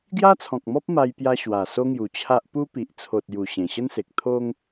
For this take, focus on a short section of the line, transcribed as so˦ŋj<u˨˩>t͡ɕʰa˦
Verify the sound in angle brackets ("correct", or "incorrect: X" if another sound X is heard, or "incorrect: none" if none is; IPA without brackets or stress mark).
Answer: correct